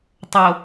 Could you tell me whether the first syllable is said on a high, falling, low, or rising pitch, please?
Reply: low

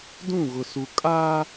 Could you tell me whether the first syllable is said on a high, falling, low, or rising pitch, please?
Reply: falling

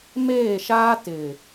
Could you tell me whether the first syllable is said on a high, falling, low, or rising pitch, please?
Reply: falling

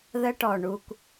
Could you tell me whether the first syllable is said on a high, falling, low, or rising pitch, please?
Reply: high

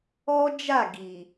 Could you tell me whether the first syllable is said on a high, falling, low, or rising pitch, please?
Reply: high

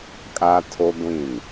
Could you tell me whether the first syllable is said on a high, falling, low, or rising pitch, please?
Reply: high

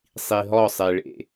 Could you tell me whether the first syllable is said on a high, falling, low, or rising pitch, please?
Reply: low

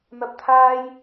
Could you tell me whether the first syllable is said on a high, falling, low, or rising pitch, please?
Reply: low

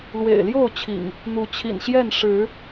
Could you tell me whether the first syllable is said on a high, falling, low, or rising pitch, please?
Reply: low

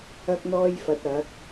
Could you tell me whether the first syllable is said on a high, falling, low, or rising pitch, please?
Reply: high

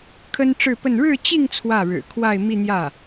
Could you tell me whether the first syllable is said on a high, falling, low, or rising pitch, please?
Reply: high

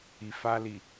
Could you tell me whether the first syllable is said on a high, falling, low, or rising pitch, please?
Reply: low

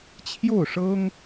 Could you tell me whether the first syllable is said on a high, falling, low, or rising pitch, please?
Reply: falling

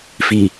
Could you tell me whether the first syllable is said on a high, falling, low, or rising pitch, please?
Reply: low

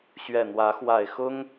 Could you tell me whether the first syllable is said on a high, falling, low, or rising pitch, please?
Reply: low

